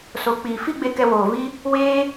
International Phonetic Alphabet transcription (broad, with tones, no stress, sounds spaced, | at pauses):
s o˨ k͡p iː˨ f i˦ ɡ͡b e˧ k ɛ˧ w oː˨ v i˧ | w eː˧